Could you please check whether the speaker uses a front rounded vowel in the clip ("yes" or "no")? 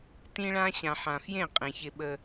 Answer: no